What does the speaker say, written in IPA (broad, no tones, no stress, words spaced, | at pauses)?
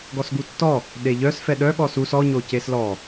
ɡɔsɡutːɔ | ɗeʎœs fɛɗœɠɔ sus ɔɲo ceslɔ